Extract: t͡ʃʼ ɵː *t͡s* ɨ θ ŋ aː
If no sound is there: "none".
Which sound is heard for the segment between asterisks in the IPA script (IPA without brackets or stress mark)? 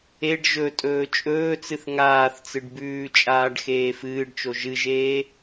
t͡s